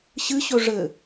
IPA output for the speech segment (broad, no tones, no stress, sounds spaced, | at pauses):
ɕ ɨ ɕ ɵ ʐ ɘ